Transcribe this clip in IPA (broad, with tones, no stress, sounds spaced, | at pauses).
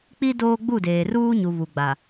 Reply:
k͡p i˦ d oː˦ ɡ͡b u˦˨ d eː˨ r uː˦ ɲ u˨ β u˨ ɡ͡b a˨